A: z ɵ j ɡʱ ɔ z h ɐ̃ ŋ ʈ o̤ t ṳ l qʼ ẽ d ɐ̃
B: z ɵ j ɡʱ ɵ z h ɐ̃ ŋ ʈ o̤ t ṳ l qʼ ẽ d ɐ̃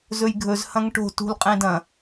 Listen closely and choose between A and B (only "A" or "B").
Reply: B